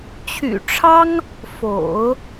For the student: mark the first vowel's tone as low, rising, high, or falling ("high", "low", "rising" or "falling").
low